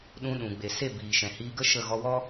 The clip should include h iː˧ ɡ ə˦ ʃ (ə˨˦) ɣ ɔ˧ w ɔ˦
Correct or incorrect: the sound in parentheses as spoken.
incorrect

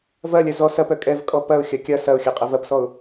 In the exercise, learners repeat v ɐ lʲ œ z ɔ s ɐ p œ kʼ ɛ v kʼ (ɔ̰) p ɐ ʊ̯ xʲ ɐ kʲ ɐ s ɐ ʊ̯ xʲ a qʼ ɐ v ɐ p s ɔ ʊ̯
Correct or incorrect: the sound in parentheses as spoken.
incorrect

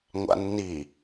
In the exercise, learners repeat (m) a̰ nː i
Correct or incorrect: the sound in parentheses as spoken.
incorrect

